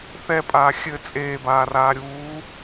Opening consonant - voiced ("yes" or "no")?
no